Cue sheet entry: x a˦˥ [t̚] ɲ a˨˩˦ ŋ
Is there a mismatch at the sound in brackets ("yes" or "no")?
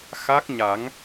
yes